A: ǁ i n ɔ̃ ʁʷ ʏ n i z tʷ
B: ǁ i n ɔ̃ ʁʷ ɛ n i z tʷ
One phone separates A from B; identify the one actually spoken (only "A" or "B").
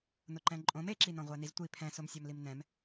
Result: B